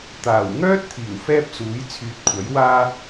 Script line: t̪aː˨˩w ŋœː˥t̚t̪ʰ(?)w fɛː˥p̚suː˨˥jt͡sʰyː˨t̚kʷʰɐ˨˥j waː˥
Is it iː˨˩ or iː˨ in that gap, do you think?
iː˨˩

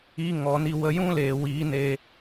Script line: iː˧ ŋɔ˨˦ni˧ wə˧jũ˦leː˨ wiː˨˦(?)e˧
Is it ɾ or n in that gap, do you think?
n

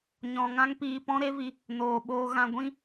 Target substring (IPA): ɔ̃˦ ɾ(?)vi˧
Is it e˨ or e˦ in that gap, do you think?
e˦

